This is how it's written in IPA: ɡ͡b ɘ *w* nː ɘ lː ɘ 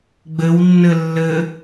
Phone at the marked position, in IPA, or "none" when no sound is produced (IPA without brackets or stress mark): w